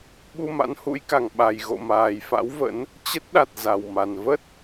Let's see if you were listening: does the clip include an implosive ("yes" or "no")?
yes